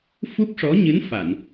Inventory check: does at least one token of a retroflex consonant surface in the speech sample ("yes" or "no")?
yes